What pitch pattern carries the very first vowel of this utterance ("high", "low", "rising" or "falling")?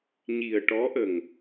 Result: low